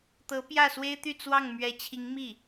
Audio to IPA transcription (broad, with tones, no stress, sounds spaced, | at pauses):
t̪ ɤ˧˥ p j ä˥˩ s w e˥ ɪ̯ t̪ y˥˧ t͡s w ɑ˥˩ ŋ m ɥ ɛ˧˥ t͡ɕʰ i˧˥ ŋ m i˥˩